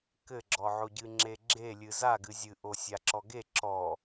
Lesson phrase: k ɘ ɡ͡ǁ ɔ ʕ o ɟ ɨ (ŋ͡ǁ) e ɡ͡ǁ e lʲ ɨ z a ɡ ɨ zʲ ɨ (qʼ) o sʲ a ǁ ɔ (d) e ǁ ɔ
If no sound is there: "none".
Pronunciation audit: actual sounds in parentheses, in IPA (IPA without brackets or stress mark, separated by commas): ŋ͡ǁ, ʔ, ɡ